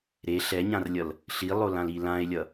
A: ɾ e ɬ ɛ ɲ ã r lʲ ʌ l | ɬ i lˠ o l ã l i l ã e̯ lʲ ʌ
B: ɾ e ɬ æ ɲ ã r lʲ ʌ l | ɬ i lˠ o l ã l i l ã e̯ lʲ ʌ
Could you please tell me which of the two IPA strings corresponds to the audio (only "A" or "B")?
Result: A